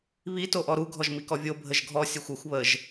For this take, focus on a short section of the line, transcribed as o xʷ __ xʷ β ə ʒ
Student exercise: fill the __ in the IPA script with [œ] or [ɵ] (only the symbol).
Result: ɵ